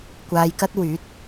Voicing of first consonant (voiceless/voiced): voiceless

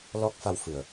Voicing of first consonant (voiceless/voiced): voiced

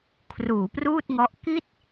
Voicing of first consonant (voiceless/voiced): voiceless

